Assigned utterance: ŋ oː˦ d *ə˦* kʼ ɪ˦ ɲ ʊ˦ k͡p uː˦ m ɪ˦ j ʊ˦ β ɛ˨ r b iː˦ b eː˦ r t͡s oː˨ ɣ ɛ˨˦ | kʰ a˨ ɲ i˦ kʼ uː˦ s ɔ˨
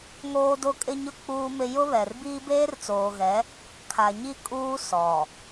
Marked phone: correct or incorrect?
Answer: incorrect